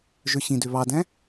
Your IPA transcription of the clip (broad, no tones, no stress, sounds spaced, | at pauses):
ʒ ø ɕ ĩ d ø β ɑ d æ̃